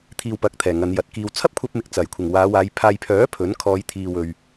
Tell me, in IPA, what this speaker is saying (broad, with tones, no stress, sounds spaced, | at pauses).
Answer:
t̪ʰ iː˨ w p ɐ˨ k̚ t̪ʰ ɛː˨˩ ŋ ɐ˨˧ n j ɐ˨˥ t̚ k iː˧ w t͡sʰ ɐ˥ p̚ kʷʰ ɐ˧ p̚ m ɪ˨ k̚ t͡s ɐ˨˩ j kʷʰ ɪ˨˩ ŋ w aː˨˧ w aː˨˧ j pʰ aː˨ j pʰ œː˨˥ pʰ ɵ˨˥ n kʰ ɔː˨˧ j t̪ʰ iː˨ w ɵ˨ ɥ